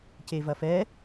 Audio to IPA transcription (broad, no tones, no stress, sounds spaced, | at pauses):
c e v ɐ f ɛ